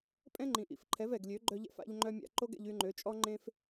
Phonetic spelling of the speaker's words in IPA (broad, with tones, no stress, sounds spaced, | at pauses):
pʼ ɛ̃˦ ŋ͡ǃ ĩ˨ ʔ ḭ˨˦ f ǃʰ ɛ˨˦ v ɛ˨ ɡ lʲ ø˨˦ ɡ͡ǃ œ˧ ʎ ɛ̰˧ f a̰˧ ʎ ŋ͡ǃ œ˧ mʲ a̰˧ ǃ o˦ ɡ ɛ̰˧ ʎ y˧ ŋ͡ǃ ø˨˦ t͡ʃʼ ɔ˦ ŋ͡ǃ ẽ˦ f